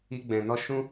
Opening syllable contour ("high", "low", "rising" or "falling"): high